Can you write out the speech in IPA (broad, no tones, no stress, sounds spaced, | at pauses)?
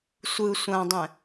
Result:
sʷ ɯ sʷ ã dˤ ɛ̃